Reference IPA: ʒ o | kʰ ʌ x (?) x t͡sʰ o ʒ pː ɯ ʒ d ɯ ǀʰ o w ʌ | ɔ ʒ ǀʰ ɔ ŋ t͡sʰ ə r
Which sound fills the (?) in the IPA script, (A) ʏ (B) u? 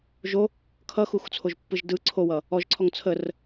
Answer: B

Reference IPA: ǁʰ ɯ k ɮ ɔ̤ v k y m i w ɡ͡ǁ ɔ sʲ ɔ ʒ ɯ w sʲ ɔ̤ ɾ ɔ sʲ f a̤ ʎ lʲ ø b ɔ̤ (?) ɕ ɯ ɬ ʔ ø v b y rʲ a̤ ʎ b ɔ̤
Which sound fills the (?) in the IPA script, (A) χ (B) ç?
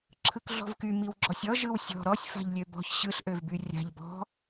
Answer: B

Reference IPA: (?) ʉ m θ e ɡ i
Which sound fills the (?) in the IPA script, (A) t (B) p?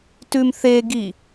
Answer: A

